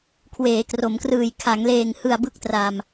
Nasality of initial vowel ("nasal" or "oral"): oral